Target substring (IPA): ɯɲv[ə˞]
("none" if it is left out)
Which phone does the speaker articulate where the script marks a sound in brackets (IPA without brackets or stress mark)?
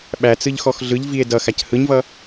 ʌ